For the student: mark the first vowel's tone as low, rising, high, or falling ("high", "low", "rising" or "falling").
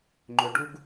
low